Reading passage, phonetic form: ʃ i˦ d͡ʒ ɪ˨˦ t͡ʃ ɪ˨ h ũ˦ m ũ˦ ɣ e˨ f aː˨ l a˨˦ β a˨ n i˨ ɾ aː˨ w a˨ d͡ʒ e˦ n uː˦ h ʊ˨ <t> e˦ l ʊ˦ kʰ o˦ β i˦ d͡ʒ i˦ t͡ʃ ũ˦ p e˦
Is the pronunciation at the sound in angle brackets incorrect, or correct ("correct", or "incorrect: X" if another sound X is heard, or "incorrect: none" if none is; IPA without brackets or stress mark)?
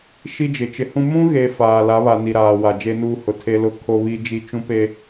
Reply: incorrect: tʰ